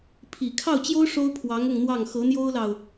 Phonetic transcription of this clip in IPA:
pʰ i˨˩ kʰ ɑ˥˩ ʊ̯ t͡ɕ j o˥ ʊ̯ ʂ o˥ ʊ̯ pʰ w ɑ˧˥ ŋ ʊ˥˧ ŋ n̪ w ɑ˥˩ ŋ x ɤ˧˥ n̪ j o˥ ʊ̯ l ɑ˨ ʊ̯

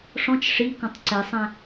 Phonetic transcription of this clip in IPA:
ʂ ɔ̃ t͡ʃ ʂ i k ɔ̃ tˤ ǀ ɛ sˤ æ̃

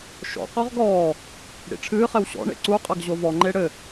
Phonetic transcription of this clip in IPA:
ʃ ɔ̰ q ɔ ʁ ɡ ɔː | ɽ ḭ ʈ͡ʂʰ ɨː χ ɛ w ɕ ɔ̰ ɳ ḛ ǀ u qʼ ɐ ɡ ʑ o v ɔ ŋ͡ǃ e ɽ ɘ

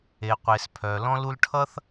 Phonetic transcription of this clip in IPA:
e˨ qʷ e˨ s pʰ œ˨ l ɔ̃˦ l u˧ l ʈʰ ʌ˦ θ

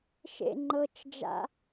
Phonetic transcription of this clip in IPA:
ʃ ḛ ŋ͡ǃ ɤ t͡ʃ d͡ʒ a̰

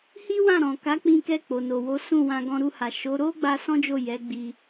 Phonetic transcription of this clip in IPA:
h i˦ w ã˦˨ ɾ ɔ̃˨ k a˨˦ k͡p ĩ˧ k ɛ˧ k͡p o˨ n o˨ w o˨˦ s ũ˦˨ w ã˧ ɡ ɔ̃˧ ɾ u˧ h a˨ ʃ o˨˦ ɾ o˦ ɡ͡b a˦ s ɔ̃˦ d͡ʒ o˦˨ j ɛ˨˦ ɡ͡b i˧

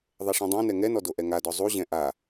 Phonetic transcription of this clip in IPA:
ðˤ ɛ ʂ ɛ̃ dˤ õ n ɛ ŋ ɛ n ɔ d o ʔ ɛ ŋ a d ɔ zˤ u ʑ ɛ̃ ʔ a

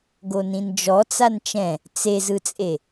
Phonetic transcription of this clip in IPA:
ɡ o n ĩ n d͡ʒ ɔ t͡s a n t͡ʃ ɛ̃ | t͡s e z ɯ t͡sʼ e

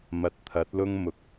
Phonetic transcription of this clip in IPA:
m ɐ˨ t̚ t̪ʰ ɐ˨˥ t̚ l ʊ˥ ŋ m ʊ˨ k̚

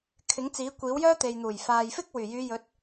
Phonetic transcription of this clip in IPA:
kʰ ɪ˨˥ ŋ t͡s iː˨˥ kʷ iː˨˥ w j œː˥ t̪ e˨ j n̪ uː˨˩ j f aː˨ j f ɪ˥ k̚ w yː˨˩ j yː˨˧ j ɵ˨˥ t̚

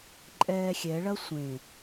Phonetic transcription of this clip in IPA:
ǃʼ ɛː xʲ ɛ ɭ ɐ sʷ ẽ

